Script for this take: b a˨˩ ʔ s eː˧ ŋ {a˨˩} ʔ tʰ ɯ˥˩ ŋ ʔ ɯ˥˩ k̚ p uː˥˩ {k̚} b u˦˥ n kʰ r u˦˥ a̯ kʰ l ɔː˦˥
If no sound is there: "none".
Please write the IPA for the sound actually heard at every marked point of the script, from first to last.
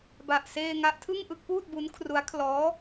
a˦˥, t̚

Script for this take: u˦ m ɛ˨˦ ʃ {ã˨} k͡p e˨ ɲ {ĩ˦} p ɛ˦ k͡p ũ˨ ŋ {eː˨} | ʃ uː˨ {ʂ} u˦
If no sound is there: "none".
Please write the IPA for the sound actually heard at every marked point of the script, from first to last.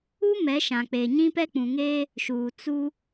ã˨, ĩ˦, eː˦, t͡s

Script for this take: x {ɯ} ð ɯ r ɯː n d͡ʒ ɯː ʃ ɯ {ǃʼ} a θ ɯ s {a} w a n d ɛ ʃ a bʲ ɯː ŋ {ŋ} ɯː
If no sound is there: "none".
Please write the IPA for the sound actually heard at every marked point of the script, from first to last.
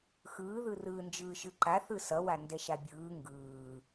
ɯː, ǃ, ʌ, ɡ

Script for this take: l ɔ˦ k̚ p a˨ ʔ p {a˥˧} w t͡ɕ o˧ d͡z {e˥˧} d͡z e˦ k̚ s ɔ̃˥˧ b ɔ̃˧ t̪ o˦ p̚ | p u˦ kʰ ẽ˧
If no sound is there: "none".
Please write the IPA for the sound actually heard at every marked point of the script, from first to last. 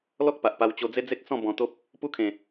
a˧, e˦

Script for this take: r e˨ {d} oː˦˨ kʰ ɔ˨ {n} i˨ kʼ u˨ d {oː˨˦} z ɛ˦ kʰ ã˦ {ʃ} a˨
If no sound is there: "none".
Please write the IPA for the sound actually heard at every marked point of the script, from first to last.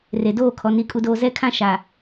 d, n, oː˨, ʃ

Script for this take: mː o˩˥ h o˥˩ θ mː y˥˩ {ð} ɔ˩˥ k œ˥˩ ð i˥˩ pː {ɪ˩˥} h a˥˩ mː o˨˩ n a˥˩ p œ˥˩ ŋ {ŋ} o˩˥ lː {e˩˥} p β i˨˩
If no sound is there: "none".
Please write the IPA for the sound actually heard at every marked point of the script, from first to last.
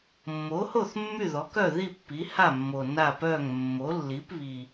ð, i˩˥, mː, i˩˥

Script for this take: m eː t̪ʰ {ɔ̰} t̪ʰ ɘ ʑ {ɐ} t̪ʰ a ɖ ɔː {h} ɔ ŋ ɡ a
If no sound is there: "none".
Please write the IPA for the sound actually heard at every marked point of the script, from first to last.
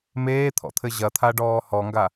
ɔ̰, ɐ, h

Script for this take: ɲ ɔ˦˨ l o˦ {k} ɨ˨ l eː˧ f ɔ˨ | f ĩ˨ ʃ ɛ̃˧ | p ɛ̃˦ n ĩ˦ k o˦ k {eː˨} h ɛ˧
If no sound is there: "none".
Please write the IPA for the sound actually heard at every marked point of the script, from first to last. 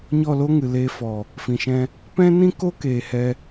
ŋ, eː˨

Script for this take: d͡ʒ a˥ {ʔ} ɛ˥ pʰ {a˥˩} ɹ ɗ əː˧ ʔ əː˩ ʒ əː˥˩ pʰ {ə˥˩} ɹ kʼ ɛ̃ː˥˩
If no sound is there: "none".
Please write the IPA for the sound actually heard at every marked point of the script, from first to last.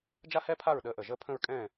h, a˥˩, ə̃˥˩

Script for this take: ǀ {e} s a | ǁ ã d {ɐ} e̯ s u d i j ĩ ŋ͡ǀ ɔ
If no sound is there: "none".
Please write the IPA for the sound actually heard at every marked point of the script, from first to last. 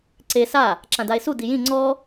e, a

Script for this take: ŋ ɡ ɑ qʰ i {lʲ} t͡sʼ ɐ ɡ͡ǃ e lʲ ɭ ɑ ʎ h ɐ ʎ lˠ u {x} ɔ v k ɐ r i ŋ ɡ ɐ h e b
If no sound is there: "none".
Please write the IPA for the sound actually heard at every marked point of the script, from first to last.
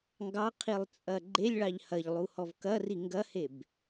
lˠ, h

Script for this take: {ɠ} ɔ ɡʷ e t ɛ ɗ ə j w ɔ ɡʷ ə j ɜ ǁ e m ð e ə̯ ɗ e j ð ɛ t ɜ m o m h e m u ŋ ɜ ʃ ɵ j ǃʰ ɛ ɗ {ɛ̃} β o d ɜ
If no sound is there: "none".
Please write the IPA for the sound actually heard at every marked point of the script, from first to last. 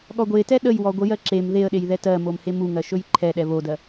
ɠ, ɛ

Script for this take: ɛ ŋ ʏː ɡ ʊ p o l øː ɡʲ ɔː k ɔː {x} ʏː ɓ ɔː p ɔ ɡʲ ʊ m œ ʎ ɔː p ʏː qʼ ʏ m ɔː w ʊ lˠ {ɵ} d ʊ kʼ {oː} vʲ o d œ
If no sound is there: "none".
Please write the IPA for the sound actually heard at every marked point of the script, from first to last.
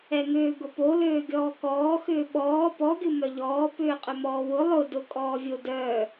x, ʊ, ɔː

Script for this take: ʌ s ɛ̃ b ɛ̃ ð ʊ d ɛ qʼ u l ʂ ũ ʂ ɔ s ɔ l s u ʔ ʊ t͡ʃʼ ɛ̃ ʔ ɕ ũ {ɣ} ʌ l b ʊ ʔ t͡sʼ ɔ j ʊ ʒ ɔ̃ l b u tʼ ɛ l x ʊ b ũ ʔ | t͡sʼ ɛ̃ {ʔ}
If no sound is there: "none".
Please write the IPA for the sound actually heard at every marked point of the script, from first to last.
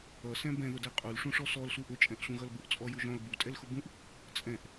ɣ, ʔ

